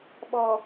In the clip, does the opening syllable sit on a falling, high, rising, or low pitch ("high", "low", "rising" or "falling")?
low